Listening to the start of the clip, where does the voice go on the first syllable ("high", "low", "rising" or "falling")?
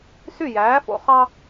falling